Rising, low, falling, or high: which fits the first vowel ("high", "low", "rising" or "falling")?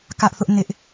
high